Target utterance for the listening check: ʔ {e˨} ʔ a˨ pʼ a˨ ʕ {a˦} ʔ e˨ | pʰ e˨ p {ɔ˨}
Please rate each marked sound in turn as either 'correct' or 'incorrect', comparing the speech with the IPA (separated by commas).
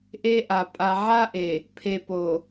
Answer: incorrect, correct, incorrect